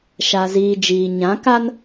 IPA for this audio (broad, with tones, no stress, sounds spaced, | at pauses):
ʃ a˨ z iː˨ d͡ʒ iː˨ ɲ ã˨˦ k a˦ n